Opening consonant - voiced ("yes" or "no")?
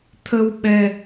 no